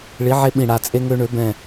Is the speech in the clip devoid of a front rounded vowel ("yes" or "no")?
no